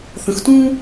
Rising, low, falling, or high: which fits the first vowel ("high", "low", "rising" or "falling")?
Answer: rising